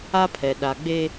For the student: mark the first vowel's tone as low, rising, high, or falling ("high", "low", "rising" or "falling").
high